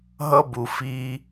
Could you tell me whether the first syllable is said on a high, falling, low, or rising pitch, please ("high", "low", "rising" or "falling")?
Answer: high